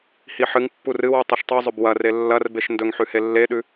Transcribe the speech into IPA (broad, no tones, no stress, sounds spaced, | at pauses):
h i ħ ɨ ŋ pː u r ɨ w u tˤ ɨ ʃ tˤ u zˤ ɵ b w ɐ r e lː ɐ r b e ʃ n d ɵ ŋ ħ ʉ h e lː e ɗ ʉ